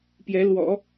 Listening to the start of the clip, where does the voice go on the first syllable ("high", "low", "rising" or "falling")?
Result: rising